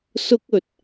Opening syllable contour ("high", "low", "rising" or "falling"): high